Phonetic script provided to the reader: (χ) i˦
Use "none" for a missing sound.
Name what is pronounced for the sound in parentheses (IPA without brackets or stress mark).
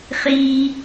χ